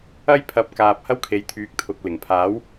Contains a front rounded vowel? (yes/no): yes